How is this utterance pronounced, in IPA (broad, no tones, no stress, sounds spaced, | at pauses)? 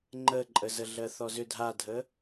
ŋ͡ǃ ə ǃʼ ə z ə ɮ ɜ θ ɔ z ʏ dʱ a dʱ ə